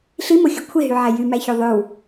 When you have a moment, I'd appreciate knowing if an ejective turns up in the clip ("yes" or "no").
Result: no